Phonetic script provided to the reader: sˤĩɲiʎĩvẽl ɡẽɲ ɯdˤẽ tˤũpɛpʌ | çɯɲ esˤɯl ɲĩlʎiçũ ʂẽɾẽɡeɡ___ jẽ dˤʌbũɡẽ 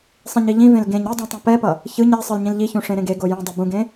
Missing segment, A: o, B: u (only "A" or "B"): A